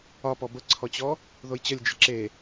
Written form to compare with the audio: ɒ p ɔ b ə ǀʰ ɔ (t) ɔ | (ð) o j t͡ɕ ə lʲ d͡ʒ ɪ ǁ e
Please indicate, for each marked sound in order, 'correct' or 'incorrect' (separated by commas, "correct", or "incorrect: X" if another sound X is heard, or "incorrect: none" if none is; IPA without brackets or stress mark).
incorrect: t͡ɕ, correct